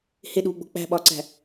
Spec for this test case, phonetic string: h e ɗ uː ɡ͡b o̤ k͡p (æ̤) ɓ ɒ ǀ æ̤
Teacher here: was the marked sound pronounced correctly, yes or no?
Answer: yes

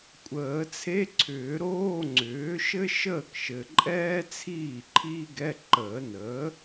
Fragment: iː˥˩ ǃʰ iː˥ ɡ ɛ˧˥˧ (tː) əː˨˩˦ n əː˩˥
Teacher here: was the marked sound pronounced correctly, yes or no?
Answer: no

